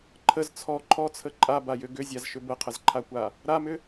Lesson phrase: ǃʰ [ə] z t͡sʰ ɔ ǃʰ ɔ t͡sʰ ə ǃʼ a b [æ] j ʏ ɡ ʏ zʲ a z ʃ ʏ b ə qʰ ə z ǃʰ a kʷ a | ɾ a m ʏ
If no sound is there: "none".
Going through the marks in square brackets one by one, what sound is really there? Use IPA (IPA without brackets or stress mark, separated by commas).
ə, a